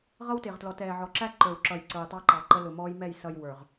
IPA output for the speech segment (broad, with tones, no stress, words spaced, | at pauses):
ʁʌ˦wtɪː˨ʁtlɔ˨ tɛː˨ʕɔ˨ǁæ˦ ǃə˞˨wǁʌ˨j ǀə˞˨jtˤɑ˦ǃɑ˨ ǃə˦lʊ˨mɔː˦j mɛ˦˨jsʌ˨j wə˞˨ʁ